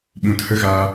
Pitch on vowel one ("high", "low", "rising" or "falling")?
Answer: low